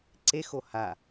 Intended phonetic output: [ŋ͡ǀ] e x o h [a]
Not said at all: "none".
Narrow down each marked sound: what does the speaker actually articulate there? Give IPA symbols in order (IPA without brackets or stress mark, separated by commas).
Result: ǀ, a